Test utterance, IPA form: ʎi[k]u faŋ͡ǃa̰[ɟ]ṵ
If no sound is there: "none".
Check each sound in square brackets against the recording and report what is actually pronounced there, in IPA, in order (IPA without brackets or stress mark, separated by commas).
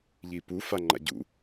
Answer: p, ɟ